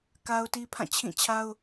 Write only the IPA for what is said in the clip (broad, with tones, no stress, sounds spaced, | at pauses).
k a˦ ʊ̯ t i˦ pʰ ã˦˨ t͡ɕʰ ĩ˦˨ t͡ɕʰ a˦ ʊ̯